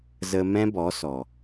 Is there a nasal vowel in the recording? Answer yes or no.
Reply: yes